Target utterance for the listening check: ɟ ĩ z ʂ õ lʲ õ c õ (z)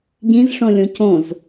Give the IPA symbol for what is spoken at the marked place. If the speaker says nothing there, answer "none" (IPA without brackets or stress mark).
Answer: z